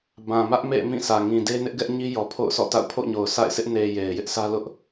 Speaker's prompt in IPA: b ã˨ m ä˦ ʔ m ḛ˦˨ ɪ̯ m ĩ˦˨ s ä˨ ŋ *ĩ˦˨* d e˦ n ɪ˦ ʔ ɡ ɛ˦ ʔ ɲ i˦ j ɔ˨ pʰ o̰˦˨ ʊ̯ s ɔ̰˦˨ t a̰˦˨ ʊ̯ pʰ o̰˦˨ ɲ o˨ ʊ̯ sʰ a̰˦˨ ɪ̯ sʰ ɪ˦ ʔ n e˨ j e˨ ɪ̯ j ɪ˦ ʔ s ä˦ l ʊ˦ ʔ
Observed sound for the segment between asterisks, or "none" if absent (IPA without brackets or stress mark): ĩ˨